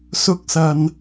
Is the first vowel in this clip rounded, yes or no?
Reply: yes